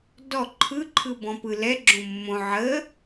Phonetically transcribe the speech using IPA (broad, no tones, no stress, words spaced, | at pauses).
dɔ ǃʰɯ ǃʰɯbɔ̃pɯ lɛ ɡ͡ǁõmːõ ʕə